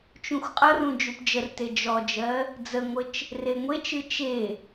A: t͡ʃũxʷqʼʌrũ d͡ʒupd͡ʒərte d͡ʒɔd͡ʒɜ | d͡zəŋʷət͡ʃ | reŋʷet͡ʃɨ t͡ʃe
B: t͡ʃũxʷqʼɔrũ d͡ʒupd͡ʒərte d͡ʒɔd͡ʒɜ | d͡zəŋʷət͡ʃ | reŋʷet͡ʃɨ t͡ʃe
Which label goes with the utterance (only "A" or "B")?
A